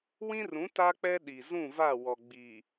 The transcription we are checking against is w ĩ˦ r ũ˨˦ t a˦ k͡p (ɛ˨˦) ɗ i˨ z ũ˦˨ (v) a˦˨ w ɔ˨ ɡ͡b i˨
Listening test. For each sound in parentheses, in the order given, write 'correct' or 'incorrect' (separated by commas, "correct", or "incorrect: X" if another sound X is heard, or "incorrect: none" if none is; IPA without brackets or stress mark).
incorrect: ɛ˦, correct